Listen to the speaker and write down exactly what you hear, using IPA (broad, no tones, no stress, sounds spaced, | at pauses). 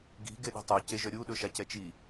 ɡ i̤ ɡ e ɗ i̤ tˤ œ c e ʒ œ ɾʲ u ɗ ɵ ʃ a c ɛ t͡ʃ i